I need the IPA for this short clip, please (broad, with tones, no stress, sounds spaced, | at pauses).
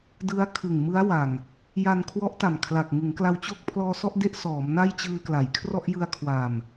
d ɯ˦˥ a̯ kʰ ɯ˨˩ ŋ m ɯ˦˥ a̯ w a˨˩ ŋ | j a˧ n kʰ w ɔ˦˥ ʔ t a˨˩ m kʰ l a˨˩ k̚ ŋ ɯ˩˦ ŋ k l a˧ w t͡ɕ o˥˩ k̚ pʰ l ɔː˧ s ɔ˥˩ ʔ d e˦˥ ʔ s ɔː˩˦ m n a˥˩ j t͡ɕ ɯː˧ k l a˩˦ j kʰ r ɔ˥˩ ʔ j ɯ˧ a̯ kʰ w a˨˩ m